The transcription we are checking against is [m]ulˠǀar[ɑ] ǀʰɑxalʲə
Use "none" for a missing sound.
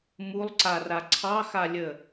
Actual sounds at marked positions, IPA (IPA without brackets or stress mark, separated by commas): m, a